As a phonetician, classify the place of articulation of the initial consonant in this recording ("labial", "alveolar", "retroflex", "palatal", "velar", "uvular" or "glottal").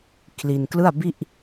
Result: velar